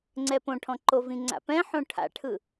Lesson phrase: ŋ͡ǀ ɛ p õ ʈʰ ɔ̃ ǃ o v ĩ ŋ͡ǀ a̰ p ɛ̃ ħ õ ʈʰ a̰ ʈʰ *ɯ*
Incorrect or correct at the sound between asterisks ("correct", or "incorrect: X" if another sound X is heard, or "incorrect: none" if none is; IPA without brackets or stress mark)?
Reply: correct